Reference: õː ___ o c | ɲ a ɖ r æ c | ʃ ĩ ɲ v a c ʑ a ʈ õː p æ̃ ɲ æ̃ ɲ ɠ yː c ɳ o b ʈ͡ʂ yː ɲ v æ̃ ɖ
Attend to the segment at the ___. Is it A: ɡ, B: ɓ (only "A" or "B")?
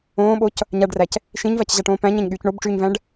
B